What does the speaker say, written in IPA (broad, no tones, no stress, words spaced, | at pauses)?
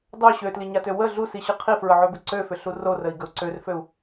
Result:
dˤø ɕøtliɲatø wə ɮusiɕɯ qʰifɹəʕøbʏ ǀøfʏɬu rorəi̯ɡəu̯ ǀørføu̯